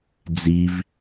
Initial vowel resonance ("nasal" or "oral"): oral